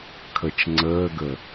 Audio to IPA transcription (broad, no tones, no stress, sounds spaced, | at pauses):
kʰ ə t͡ʃ ŋ͡ǀ əː ɡ ə